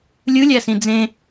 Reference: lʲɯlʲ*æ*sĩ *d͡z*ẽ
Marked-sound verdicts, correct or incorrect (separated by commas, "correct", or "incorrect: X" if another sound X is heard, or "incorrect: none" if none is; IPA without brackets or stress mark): correct, correct